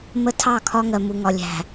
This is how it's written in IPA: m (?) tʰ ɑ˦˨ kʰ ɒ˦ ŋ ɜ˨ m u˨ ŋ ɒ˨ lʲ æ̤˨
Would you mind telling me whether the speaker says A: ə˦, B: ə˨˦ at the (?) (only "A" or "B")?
A